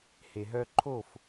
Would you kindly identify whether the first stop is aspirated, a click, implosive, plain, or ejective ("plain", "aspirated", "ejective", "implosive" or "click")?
click